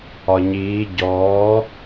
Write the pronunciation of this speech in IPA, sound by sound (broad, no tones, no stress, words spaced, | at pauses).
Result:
ɒɲiː ɟɔː